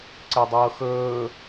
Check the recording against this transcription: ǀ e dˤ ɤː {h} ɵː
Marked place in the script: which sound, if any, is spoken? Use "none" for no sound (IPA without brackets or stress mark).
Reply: x